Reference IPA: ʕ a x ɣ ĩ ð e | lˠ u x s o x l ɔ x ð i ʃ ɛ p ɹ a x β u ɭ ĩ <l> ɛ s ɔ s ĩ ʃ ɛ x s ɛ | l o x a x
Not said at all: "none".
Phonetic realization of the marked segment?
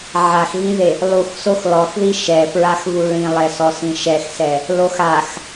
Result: lˠ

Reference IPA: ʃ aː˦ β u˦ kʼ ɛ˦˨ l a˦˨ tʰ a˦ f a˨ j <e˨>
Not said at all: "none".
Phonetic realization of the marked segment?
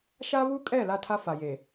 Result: e˨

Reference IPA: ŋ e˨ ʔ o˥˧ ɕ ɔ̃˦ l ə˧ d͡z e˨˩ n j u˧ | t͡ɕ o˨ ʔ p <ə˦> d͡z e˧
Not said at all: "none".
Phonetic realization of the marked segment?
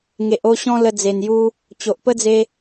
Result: ə˦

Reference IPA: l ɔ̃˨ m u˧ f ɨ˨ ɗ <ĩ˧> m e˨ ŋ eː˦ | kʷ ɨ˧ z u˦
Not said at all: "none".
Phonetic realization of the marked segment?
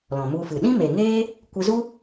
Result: ĩ˦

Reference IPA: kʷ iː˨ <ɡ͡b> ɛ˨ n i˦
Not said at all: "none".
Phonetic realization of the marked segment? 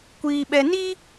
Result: ɓ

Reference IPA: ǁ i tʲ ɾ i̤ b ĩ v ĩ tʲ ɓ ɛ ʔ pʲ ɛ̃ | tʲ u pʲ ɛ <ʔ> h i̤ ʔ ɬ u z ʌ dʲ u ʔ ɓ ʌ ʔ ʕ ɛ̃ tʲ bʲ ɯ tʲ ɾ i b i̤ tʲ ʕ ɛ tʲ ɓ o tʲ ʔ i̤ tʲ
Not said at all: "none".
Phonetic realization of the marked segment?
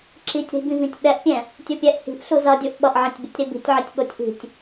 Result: ʔ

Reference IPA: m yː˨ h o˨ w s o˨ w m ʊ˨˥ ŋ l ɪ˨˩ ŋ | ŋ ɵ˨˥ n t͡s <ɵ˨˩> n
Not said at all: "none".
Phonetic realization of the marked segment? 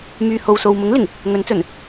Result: ɵ˨˩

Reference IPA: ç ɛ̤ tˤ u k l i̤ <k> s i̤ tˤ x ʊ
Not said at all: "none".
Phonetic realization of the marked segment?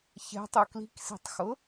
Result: k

